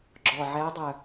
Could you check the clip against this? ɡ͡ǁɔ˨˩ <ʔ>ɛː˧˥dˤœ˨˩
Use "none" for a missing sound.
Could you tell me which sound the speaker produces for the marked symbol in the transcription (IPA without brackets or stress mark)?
ʕ